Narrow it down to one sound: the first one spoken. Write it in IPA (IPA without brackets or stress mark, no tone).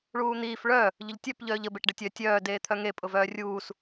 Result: ɭ